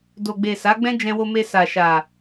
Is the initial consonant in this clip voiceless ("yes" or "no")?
no